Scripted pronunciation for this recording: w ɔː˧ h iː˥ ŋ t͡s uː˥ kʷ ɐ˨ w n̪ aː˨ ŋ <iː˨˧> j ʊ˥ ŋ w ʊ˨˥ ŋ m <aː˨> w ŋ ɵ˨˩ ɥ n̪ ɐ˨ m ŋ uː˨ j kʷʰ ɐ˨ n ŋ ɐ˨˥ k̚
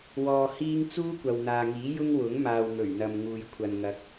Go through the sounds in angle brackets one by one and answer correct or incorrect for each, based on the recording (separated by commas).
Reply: incorrect, correct